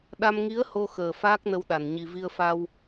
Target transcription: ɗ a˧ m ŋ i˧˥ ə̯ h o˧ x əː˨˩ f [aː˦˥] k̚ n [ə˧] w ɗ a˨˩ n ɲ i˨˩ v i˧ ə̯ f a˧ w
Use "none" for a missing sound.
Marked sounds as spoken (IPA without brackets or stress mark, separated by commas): aː˦˥, ə˧